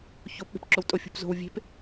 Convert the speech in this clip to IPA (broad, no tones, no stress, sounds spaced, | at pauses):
ç o p ɓ e̤ p ǁ o w tʼ o fʲ ṳ p z o̤ w vʲ e̤ p